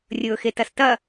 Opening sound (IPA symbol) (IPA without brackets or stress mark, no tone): rʲ